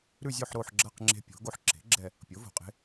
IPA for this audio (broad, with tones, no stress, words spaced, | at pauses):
ɾʉ˥˧zʲo˥˧ħ ɾo˥˧ħɡ͡ǁɐ˥˧qŋ͡ǁe̤˦˥ pʲo̤˩˥ ɡo˦˥ħ ǁe̤˩˥ ɡ͡ǁɛ˥˧ | pʲo˩˥ vo̤˨qʼe̤˦˥